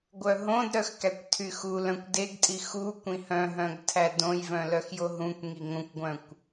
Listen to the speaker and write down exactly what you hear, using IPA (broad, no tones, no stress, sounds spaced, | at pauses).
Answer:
ɡʷ œ ɦ õ d ɾ œ x k æ kʷ tʰ y x u l œ̃ kʷ d e ɡ tʼ i x u kʷ ĩ h œ̃ ɦ œ̃ ɡ tʰ æ d õ j v œ̃ l œ x j o ɦ ũ kʷ ŋ i ŋ õ kʷ ɡʷ œ̃ kʷ